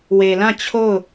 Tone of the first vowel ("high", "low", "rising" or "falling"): low